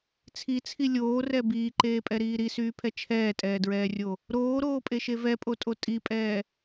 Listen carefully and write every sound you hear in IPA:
t͡sʰ i t͡sʰ i lʲ oː r ɛ b iː ǃ eː pʼ ɛ ɾ iː ɾ i s yː pʰ ɛ t͡ʃʰ ɛː tʼ ɛː d ɹ ɛː rʲ o | ɾ oː ɾ oː pʼ e ʃ e v ɛ pʼ o tʼ o tʼ i pʼ ɛː

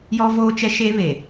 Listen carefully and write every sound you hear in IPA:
j ɔ˦ v oː˦ t͡ʃ ɛ˦ ʃ e˦ β e˨

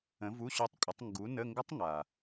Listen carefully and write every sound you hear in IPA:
ə̃˨˥ v u˧˥˧ ɕ o˦˥ tˤ kʷʼ ə˨˥ tˤ ŋ ɡ u˨˥ n ə˧˥˧ ŋ ɡ ə˦˥ tˤ ŋ a˩

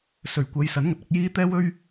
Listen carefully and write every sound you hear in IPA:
s ɵ˨˩ ɥ kʷ ɐ˨˧ j s ɐ˨˥ n ŋ ɐ˨ t̚ ɐ˨˥ k̚ j iː˥ t̪ ɛː˥ w ɵ˥ ɥ

